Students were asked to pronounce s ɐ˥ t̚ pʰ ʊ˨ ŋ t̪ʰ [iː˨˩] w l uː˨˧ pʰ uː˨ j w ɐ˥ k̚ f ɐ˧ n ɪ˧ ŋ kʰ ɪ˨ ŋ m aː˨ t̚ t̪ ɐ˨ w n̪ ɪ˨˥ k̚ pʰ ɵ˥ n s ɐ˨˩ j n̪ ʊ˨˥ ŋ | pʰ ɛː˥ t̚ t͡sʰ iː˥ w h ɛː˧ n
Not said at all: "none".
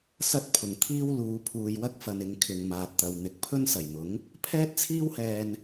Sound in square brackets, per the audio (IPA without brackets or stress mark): iː˥